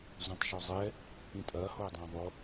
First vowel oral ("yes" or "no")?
no